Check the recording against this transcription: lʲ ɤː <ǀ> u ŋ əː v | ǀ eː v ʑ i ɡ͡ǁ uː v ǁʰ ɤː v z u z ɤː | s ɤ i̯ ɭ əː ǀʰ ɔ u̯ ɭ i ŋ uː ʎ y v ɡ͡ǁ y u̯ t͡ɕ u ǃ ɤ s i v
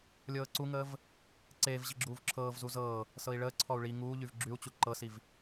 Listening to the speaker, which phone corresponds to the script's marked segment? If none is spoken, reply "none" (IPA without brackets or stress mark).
ǀ